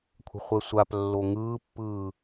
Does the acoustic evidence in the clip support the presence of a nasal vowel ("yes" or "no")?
no